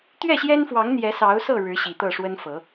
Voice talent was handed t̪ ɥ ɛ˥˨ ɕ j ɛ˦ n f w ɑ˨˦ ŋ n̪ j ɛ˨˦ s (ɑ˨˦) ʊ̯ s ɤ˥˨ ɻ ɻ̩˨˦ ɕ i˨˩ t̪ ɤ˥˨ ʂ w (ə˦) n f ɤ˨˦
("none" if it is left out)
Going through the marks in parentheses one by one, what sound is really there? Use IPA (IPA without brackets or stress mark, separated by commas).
ɑ˨˦, ə˦